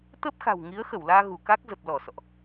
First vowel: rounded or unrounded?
unrounded